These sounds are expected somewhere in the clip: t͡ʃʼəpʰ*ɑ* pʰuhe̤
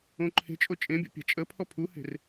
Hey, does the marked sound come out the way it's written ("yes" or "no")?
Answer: no